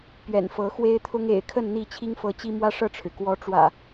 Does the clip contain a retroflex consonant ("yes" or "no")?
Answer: yes